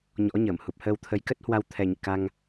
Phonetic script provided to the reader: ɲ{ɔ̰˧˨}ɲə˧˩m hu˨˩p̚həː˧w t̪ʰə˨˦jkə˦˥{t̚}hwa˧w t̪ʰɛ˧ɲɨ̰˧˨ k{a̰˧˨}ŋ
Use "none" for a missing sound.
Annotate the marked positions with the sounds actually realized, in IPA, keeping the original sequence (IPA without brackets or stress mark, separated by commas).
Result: ɔ̰˧˥, t̚, a˧